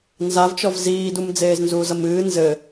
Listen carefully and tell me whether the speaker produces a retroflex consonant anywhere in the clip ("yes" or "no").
no